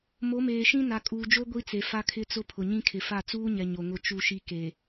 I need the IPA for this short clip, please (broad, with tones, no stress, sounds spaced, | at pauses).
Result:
m o˨˦ m eː˨ ʃ ĩ˦ n a˨ kʼ uː˨ d͡ʒ o˦ ɡʷ i˦ t͡s e˨ f a˦ kʰ ɪ˦ t͡s ʊ˦ pʰ ʊ˨ ɲ ĩ˦ kʰ ɪ˨ f a˦˨ t͡s uː˦ ɲ ɛ˨ ɲ o˨ ŋ ʊ˨ t͡ʃ u˨ ʃ i˨ k e˨